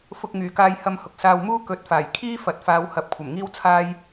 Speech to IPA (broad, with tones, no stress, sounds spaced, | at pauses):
f ʊ˧ k̚ ŋ yː˨˩ k aː˧ j h ɐ˧ m h ʊ˨ k̚ s aː˧ w m uː˥ k ɵ˨˥ t̚ f aː˨˩ j kʰ iː˥ f ɐ˨ t̚ f aː˨˧ w h ɐ˨˥ p̚ kʷʰ ɐ˨˩ m ŋ iː˥ w t͡sʰ aː˥ j